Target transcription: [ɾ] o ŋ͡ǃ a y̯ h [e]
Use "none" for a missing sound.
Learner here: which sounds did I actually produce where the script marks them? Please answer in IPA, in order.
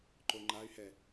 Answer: ǃ, ɛ

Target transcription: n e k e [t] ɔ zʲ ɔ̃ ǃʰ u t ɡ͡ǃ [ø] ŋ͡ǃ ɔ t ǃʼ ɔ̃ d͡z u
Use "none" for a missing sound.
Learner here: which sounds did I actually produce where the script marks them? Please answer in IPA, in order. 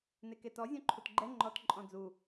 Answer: t, ɛ

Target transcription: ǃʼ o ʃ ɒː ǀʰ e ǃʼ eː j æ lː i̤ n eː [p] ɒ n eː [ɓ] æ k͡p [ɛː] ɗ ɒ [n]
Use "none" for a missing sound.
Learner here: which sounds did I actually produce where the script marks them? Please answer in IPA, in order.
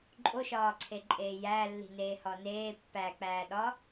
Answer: h, pː, æː, none

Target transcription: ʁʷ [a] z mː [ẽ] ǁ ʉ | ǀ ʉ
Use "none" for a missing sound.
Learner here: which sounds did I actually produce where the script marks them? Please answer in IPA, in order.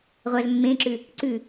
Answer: a, ẽ

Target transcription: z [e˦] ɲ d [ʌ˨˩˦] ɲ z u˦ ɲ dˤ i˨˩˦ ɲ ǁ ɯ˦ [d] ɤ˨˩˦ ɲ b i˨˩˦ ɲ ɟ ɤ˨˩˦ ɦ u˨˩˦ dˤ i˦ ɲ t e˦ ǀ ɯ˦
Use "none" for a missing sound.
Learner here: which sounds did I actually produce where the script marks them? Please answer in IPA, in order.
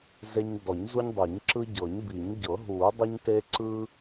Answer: e˦, ɔ˨˩˦, ɟ

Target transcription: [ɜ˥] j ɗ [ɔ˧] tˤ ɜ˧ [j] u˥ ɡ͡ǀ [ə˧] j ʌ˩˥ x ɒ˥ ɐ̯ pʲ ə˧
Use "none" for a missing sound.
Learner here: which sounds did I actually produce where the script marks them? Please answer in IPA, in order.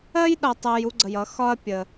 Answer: ɜ˥, ʌ˧, j, ə˧

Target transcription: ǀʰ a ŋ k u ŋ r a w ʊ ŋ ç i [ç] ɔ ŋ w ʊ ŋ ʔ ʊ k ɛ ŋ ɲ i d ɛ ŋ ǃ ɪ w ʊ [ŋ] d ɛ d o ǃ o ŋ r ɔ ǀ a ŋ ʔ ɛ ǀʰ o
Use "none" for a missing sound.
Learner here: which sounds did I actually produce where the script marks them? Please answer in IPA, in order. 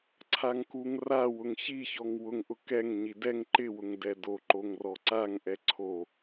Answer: ç, ŋ

